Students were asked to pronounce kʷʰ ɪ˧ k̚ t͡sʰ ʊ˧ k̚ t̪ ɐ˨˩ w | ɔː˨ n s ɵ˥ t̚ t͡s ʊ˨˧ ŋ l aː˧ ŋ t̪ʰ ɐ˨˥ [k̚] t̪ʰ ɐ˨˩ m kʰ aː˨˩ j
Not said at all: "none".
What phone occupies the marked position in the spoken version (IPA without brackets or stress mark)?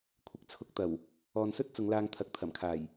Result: k̚